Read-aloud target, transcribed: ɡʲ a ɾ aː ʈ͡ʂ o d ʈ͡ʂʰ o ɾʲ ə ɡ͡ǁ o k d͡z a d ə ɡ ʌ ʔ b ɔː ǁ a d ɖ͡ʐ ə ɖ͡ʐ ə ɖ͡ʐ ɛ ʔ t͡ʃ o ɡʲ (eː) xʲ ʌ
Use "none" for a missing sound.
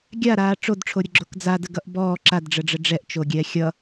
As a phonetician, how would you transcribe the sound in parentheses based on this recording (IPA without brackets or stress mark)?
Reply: ɛː